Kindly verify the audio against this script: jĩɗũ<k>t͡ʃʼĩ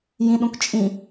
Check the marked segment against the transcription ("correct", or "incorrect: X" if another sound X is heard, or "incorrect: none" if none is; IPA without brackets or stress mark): correct